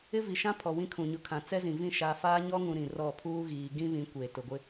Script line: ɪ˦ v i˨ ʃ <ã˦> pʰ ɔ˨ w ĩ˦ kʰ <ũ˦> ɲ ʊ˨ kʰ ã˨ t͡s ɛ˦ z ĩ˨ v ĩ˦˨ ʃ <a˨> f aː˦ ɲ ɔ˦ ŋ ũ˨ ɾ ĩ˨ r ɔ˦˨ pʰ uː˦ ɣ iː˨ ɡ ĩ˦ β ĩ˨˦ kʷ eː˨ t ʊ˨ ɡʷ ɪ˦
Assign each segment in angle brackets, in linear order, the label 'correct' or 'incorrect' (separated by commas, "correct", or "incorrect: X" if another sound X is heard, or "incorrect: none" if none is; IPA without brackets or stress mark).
correct, incorrect: ũ˨, correct